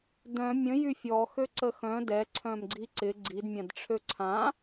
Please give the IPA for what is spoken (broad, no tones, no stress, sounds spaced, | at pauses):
d œ̃ mʲ ə̃ j y fʲ ɔ x ø ǀ ə x œ̃ d ɛ ǀʰ œ̃ m ɡ͡ǀ i ǀ ɪ ɡ͡ǀ i d mʲ ã d ʈ͡ʂʰ ø ǀʰ ã